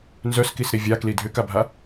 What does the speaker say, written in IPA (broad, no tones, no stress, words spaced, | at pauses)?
nzœskisɾi vʲakli dʱʏkabʱa